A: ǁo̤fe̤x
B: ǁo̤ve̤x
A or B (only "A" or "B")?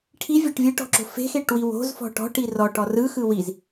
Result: A